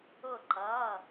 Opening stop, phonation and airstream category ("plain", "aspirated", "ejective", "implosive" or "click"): click